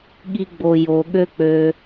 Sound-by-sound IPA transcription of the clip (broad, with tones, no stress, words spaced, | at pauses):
ɠi˨ɡ͡bo˨ jo˨ɠø˧ k͡pø˧